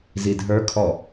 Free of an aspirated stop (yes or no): no